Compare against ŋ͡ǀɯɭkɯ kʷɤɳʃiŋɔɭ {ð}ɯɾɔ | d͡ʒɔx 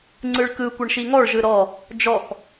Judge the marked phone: incorrect: ʒ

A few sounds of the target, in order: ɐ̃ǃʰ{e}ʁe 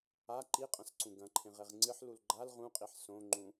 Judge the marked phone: incorrect: ẽ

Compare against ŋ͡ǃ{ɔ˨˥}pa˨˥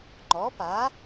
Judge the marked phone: correct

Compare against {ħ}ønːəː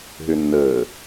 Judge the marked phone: incorrect: ɦ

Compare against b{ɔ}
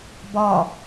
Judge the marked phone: correct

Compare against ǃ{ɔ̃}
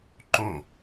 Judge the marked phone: incorrect: õ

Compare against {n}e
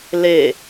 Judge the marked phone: incorrect: l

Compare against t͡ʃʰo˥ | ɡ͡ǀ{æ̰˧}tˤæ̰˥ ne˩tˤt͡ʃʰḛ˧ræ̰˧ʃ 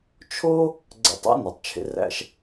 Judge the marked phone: correct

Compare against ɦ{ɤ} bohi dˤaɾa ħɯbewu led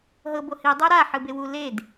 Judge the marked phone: correct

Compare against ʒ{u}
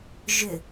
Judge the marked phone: incorrect: ʏ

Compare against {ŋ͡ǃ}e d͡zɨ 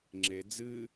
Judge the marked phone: incorrect: ŋ͡ǁ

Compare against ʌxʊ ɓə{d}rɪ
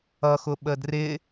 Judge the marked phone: correct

